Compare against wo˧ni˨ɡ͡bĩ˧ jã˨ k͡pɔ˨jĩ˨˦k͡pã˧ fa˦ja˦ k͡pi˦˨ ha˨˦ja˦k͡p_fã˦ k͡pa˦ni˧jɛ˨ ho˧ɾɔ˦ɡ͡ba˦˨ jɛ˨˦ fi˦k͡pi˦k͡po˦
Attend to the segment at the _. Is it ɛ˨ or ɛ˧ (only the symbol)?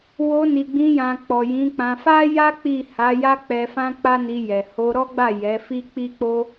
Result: ɛ˧